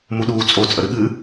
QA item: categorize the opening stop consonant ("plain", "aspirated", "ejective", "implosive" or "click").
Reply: implosive